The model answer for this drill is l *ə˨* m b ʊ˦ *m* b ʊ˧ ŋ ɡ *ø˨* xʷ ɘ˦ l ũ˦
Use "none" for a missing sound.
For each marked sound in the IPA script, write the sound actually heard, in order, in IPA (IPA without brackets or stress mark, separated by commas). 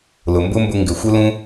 ʊ˨, m, ɘ˨